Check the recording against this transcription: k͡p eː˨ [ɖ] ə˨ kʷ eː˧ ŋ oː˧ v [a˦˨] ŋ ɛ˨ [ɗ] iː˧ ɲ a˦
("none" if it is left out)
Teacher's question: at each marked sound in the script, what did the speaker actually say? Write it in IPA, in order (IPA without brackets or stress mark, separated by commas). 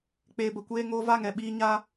b, a˦˨, ɓ